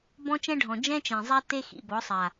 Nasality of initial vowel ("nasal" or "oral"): nasal